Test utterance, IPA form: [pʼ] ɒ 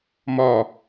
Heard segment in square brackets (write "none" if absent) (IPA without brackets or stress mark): m